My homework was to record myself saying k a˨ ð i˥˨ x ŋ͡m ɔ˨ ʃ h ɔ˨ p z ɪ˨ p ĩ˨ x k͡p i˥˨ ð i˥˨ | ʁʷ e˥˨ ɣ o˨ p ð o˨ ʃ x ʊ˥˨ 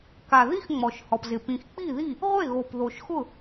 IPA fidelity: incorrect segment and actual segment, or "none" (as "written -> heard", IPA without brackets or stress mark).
none